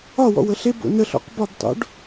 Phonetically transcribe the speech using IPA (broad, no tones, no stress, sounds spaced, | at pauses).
ɒ w ɔ̰ w ə ɬ e b o̰ n ə ɬ ɔ̰ q b ɒ b tˤ o̰ ɖ